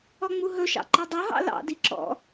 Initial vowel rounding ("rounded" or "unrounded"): rounded